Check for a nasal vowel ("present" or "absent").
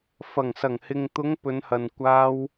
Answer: absent